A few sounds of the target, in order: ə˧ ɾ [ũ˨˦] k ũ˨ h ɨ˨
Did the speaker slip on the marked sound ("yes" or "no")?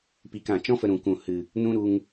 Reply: yes